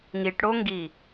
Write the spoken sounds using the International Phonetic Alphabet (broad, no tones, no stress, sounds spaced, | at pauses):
ŋ i ʈ ɽ o ŋ ɡ i